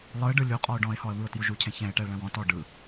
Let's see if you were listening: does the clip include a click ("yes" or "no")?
no